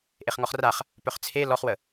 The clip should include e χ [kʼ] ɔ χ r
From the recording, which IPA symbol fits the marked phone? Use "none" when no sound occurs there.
ŋ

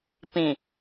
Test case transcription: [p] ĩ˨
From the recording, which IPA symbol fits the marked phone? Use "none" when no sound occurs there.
p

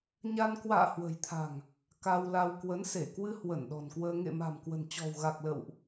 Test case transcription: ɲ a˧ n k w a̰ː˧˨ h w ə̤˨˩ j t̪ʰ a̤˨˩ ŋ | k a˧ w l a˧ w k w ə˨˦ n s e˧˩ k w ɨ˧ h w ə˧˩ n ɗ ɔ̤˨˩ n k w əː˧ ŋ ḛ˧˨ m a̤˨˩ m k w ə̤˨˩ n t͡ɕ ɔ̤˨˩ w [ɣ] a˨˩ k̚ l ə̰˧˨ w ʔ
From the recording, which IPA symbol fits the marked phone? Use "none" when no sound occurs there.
ɣ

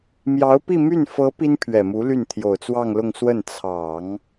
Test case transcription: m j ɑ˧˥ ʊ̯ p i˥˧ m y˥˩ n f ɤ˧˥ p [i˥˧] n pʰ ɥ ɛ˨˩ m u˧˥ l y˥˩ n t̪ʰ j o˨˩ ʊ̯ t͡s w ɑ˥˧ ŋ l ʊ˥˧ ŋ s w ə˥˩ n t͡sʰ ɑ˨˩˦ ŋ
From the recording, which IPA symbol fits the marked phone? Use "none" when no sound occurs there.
i˥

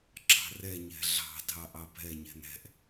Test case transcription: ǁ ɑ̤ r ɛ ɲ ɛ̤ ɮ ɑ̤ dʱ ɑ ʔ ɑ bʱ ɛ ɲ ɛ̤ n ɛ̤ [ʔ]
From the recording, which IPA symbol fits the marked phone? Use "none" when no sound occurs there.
ʔ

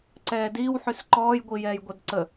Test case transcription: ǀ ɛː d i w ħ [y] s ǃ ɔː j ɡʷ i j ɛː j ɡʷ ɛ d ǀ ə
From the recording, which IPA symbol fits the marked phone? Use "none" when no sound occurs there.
y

